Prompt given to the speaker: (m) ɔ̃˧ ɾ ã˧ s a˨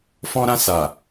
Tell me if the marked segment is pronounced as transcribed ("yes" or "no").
no